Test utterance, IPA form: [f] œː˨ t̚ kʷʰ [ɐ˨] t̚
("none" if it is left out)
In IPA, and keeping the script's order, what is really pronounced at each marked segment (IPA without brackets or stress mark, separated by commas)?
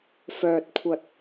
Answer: f, ɐ˨